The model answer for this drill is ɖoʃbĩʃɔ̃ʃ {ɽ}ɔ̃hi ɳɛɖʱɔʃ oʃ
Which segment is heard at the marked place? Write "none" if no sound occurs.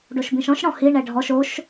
ɽ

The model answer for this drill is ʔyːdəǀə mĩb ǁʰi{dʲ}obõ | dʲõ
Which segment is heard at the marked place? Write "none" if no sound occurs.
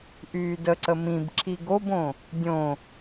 ɡ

